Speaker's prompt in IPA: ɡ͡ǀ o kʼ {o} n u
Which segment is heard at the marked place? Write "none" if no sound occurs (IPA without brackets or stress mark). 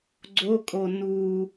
o